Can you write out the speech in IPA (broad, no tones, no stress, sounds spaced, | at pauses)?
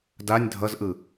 d a nʲ dʱ ʌ z ʔ ɯ